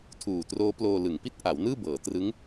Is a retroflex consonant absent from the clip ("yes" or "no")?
yes